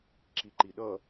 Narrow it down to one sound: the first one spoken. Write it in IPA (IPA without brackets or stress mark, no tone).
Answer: ǁ